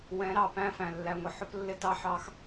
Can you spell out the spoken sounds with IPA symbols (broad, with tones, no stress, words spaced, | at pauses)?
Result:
wɛ̃˨˦ɾɑ˨ pæ̃˦˨fæ̃˨ lːæ˨ŋʷə˨ħʊ˦plːɪ˦ tɑ˦ħɑ˦x